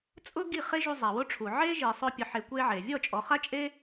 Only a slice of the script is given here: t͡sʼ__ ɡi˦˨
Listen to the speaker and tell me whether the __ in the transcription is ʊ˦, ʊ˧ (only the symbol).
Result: ʊ˦